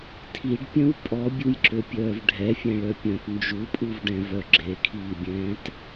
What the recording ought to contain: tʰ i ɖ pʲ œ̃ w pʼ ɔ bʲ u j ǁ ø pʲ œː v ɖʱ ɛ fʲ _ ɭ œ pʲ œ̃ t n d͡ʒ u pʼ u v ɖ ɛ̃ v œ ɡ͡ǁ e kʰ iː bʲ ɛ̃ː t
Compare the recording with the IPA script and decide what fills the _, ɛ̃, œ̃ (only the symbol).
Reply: ɛ̃